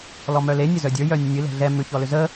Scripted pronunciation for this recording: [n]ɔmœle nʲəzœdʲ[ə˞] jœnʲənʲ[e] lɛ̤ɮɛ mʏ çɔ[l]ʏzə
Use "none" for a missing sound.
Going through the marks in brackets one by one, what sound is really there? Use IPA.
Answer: l, ə˞, ɨ, l

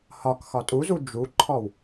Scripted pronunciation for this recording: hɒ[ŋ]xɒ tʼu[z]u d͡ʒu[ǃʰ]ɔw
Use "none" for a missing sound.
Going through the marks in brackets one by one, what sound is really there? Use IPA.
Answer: k, z, ǃʰ

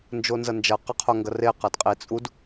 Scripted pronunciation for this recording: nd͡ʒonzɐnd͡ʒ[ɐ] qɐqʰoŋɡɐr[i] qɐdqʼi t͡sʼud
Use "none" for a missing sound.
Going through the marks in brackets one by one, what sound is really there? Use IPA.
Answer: ɐ, e

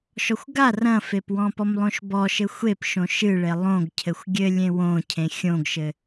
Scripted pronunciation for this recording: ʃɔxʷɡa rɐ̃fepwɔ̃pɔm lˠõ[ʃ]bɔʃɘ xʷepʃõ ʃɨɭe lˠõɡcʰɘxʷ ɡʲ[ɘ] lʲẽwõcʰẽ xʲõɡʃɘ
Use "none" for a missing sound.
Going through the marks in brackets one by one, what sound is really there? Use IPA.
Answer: ʃ, ɘ

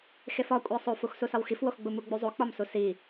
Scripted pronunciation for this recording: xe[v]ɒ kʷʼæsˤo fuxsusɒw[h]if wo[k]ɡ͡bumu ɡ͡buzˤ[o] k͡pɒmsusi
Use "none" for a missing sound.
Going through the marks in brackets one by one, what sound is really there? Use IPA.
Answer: f, x, x, o

